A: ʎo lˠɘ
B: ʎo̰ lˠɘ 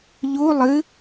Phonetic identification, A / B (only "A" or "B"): A